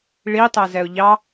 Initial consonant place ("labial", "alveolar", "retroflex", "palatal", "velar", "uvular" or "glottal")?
retroflex